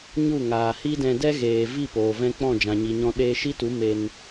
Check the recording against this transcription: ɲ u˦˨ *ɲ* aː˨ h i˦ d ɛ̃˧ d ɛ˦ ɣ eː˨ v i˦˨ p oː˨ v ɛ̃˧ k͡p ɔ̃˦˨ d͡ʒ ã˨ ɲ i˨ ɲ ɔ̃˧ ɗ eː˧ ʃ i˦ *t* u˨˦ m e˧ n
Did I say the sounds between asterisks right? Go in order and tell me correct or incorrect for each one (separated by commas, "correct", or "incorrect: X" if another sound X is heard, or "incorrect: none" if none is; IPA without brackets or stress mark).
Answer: incorrect: ŋ, correct